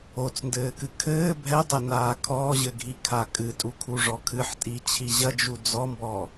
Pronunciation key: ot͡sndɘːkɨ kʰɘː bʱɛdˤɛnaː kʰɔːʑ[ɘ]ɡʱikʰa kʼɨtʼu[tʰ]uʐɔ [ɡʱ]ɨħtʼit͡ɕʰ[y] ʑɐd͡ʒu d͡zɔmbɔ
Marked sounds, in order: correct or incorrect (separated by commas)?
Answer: correct, incorrect, incorrect, incorrect